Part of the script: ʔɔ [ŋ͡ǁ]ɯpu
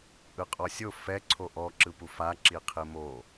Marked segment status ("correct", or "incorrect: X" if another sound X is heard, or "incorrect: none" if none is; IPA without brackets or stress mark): incorrect: ǁ